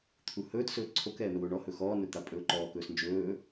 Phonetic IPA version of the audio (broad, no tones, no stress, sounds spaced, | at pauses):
t̪ʰ u h ɵː t s ɵː ǀʰ o k ɛː m ɛ w o ɳ ɔ h ɵ x ɔː n ɵ t̪ a pʼ ɵː ǃ ɔː k ɵː s n d͡ʒ ɵː